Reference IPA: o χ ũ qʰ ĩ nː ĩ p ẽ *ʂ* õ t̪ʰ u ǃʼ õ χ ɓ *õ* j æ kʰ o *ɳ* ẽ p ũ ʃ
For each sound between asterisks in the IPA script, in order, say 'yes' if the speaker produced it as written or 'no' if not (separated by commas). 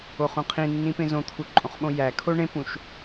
no, yes, yes